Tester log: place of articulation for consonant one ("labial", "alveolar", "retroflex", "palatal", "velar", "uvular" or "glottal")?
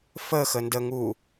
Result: labial